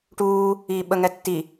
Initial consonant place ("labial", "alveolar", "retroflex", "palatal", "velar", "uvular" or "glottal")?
retroflex